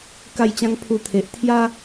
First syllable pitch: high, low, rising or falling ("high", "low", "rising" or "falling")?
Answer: falling